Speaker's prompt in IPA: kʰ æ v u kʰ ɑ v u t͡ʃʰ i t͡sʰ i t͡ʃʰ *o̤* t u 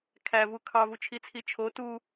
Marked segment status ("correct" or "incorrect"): incorrect